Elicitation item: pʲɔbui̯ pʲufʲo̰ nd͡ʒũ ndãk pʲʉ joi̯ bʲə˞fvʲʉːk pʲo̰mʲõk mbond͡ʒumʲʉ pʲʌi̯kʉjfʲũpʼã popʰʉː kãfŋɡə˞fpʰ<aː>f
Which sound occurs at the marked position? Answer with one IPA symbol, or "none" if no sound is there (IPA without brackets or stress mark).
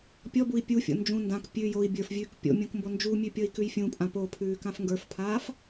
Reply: aː